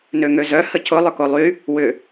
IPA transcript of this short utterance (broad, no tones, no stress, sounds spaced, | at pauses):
n ø ŋ ø z œ h ə cʰ ʊ lˠ ʏ k o lˠ y | w ʏ